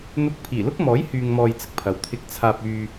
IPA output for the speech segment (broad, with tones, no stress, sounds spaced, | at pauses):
n̪ ʊ˧ k̚ pʰ iː˨˩ l ʊ˥ k̚ m ɔː˨˥ j h yː˧ ŋ m ɔː˧ j t͡s ɪ˥ k̚ pʰ ɐ˨ w t̪ʰ ɪ˧ k̚ t͡sʰ aː˧ p̚ yː˧